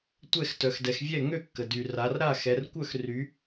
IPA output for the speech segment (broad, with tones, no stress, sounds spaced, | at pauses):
tʷ ɛ˥˨ x t œ˩˧ x d ɛ˩˧ x vʲ ɛ˥˨ ŋ ø˥˨ kː ə˩ d y˩ r a˩˧ r ɾ a˥˨ x ɛ˩˧ r kʷ œ˥˨ x r y˩˧